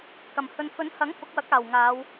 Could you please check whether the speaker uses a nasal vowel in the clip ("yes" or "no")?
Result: no